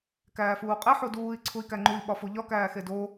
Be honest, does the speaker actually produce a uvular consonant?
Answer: yes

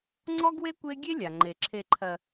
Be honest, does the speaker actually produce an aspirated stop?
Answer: yes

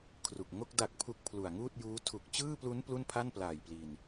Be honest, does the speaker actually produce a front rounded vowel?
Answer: no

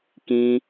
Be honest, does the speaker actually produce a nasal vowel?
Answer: yes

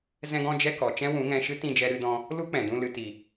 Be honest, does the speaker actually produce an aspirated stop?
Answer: no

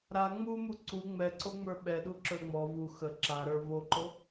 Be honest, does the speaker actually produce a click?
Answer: yes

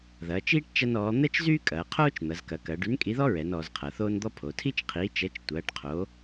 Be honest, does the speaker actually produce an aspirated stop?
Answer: yes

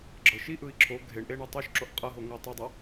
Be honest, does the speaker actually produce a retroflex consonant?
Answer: yes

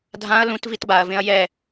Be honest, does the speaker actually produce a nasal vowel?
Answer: yes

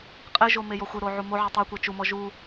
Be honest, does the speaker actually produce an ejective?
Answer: yes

